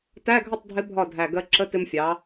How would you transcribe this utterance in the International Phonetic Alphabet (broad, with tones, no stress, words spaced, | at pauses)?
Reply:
tæ˧˥˧ɡʱə˥˩tˤdʱɪ˧˥ bʱɒ˥˩dʱæ˧˩ ɡɜ˧ǁə˧˥˧ tɪ˧mfʲɑ˩˧